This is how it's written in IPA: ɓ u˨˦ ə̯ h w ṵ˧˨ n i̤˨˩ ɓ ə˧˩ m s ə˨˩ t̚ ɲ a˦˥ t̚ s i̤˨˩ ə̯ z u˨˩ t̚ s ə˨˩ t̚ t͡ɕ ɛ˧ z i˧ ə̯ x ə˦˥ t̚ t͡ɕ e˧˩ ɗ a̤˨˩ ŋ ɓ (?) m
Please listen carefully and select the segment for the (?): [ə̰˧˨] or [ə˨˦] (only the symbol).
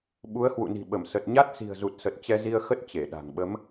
ə˨˦